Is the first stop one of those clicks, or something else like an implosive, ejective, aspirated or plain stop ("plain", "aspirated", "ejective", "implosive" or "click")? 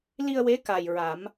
plain